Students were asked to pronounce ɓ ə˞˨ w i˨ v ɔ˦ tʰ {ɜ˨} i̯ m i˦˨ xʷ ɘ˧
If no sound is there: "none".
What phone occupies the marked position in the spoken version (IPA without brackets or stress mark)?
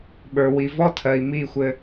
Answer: ɜ˨